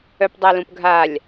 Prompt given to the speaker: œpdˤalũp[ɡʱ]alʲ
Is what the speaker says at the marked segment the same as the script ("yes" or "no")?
yes